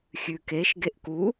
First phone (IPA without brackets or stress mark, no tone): xʲ